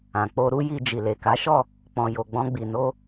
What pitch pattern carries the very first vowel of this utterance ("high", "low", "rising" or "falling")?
low